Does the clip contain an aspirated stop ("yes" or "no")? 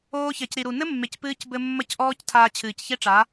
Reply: yes